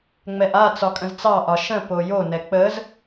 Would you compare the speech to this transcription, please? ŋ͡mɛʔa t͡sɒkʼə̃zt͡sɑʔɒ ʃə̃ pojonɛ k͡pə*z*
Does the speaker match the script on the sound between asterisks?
yes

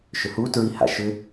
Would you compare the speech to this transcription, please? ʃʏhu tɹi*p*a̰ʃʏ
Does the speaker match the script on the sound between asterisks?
no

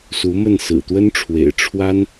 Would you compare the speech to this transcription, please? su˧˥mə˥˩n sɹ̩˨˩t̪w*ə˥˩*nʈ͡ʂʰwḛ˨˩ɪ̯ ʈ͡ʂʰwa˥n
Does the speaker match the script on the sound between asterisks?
no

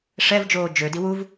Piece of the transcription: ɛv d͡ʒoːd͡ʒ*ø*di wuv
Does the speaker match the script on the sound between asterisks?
yes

